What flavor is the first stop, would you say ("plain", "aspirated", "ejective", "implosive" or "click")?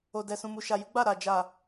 plain